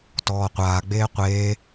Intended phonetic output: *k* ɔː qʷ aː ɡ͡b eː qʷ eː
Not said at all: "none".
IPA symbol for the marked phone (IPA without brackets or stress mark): t